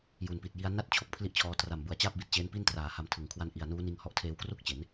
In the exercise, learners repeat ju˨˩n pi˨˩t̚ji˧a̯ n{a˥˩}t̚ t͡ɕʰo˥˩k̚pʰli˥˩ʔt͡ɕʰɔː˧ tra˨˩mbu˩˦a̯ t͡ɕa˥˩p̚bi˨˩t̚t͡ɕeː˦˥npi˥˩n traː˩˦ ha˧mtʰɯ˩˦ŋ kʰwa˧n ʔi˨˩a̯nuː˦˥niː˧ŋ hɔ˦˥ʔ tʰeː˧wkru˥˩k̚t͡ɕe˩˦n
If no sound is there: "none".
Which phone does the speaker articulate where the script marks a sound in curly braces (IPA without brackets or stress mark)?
a˥˩